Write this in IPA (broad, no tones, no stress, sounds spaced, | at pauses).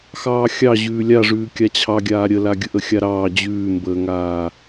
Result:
x ɑː xʲ ɑ ʑ ʉː lʲ a ʐ ʉː kʲ a t͡ɕʰ ɑ ɡʲ aː ɾʲ ə l a ɡʲ ə ʔ ə xʲ a ɾ ɑː d͡ʑ ʉː m b əː ŋ aː